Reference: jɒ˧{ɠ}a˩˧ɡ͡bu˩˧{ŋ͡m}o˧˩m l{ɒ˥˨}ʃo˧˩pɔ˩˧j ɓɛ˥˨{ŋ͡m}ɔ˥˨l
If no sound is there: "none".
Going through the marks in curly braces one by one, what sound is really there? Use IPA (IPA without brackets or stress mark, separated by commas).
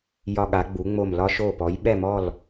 ɠ, ŋ͡m, ɒ˧, m